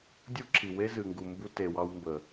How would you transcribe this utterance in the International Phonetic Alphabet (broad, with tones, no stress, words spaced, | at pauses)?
dʲu˦ǁʰi˨we˦ zɨ˨ŋɡu˨mbu˧ te˨wɑ˧wmbə˨